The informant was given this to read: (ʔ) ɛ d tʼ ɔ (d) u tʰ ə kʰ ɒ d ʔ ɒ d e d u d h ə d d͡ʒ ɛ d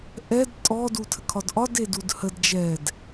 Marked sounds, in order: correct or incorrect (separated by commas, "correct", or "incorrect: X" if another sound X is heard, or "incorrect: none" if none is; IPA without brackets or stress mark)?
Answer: correct, correct